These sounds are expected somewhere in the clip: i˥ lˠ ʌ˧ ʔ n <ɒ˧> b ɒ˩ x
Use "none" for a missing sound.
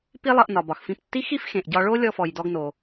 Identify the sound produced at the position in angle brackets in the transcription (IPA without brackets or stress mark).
ɒ˩